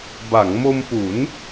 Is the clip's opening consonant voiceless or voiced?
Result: voiced